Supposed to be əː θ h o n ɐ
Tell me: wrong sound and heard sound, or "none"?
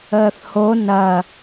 none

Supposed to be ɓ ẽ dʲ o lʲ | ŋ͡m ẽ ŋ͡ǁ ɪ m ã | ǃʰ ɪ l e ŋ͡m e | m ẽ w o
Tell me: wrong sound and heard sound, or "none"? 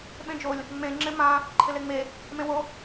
dʲ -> d͡ʒ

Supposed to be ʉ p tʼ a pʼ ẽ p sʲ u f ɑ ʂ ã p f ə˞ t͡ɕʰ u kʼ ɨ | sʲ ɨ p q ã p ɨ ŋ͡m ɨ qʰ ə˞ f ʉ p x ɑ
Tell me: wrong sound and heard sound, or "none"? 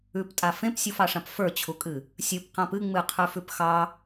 pʼ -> f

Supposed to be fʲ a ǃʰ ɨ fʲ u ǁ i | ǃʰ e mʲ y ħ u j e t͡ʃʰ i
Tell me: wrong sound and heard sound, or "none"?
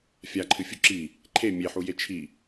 y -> e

